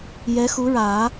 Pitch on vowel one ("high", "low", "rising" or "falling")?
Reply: rising